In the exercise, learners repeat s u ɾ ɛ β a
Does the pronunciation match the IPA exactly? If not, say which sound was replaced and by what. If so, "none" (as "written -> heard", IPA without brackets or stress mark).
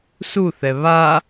ɾ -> θ